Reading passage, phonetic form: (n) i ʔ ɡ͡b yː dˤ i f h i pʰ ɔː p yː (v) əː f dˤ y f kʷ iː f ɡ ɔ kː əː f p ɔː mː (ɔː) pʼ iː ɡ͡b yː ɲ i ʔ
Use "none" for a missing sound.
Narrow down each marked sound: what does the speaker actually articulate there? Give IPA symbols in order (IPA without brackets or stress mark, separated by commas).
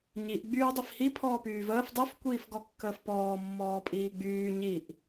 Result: ɲ, v, ɔː